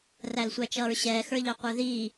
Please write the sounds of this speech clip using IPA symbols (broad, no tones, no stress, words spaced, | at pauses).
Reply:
rælsʷæt͡ʃʌːɹɕɛː xə˞ʎɑqʷə˞ðiː